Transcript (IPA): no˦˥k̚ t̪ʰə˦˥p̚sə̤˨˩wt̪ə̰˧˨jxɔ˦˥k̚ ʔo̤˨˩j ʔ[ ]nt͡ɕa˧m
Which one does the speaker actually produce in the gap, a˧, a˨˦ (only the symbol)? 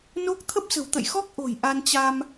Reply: a˧